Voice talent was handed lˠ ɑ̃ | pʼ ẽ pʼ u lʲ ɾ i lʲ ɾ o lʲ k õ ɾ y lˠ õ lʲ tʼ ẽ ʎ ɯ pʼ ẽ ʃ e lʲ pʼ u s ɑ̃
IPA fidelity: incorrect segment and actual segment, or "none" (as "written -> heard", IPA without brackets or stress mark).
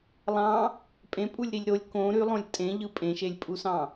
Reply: none